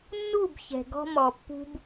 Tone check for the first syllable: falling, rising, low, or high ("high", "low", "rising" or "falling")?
falling